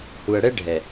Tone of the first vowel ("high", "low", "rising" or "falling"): low